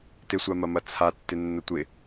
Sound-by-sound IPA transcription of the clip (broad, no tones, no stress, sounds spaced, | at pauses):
t ɪ sʷ a m ɐ m ɐ t͡sʰ a tː ɪ nː ə tʷ ɪ